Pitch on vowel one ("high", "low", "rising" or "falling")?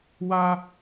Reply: high